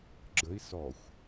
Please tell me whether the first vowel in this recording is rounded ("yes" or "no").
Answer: no